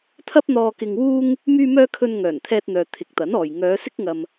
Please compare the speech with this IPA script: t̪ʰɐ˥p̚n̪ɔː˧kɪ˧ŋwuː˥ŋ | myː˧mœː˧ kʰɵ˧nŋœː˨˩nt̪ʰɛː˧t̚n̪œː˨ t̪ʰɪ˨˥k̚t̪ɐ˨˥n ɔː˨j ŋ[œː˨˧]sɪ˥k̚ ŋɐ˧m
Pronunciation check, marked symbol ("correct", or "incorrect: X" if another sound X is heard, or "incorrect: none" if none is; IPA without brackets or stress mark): correct